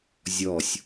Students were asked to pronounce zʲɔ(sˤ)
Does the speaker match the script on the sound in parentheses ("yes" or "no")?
no